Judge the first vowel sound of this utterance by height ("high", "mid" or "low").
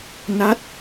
low